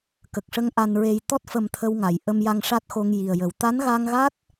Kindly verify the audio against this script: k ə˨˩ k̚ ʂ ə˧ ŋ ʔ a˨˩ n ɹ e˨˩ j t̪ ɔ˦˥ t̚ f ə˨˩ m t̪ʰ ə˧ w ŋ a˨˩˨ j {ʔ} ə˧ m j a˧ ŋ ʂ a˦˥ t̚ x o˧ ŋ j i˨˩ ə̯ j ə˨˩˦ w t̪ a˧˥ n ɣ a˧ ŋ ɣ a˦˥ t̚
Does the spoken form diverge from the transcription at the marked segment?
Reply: no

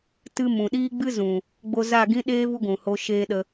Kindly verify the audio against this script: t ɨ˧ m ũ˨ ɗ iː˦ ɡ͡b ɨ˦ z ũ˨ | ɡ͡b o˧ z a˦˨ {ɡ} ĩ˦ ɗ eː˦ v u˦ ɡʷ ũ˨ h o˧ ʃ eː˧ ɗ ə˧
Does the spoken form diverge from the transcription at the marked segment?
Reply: no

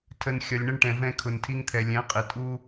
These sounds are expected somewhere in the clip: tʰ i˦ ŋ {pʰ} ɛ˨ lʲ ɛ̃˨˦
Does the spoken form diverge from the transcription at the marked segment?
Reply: yes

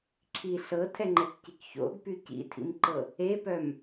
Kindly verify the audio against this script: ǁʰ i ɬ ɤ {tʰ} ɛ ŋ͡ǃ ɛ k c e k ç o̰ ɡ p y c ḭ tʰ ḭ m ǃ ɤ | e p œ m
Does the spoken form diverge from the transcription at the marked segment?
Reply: no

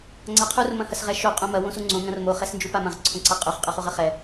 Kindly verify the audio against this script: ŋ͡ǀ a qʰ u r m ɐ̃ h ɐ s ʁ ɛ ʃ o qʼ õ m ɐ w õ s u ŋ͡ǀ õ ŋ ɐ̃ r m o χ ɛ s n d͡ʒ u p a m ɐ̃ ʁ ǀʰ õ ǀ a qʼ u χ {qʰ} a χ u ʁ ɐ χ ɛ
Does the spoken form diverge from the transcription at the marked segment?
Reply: yes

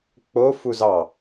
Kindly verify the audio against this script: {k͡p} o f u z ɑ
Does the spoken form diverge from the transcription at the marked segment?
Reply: no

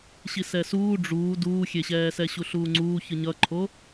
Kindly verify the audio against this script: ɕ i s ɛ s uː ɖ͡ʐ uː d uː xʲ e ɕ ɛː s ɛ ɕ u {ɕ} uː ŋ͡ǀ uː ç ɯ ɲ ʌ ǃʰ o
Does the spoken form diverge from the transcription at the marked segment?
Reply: yes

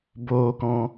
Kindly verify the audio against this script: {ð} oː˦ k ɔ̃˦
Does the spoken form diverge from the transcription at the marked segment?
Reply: yes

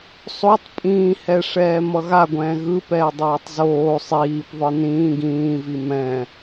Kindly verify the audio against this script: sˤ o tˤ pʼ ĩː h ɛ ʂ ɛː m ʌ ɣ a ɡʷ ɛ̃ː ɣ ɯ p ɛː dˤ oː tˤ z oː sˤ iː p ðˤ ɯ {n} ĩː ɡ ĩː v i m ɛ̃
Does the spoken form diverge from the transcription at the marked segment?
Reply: no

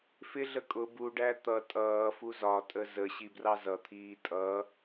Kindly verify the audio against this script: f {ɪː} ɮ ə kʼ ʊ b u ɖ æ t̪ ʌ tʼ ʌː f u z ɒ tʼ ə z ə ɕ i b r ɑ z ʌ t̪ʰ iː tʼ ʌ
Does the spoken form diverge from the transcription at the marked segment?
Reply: yes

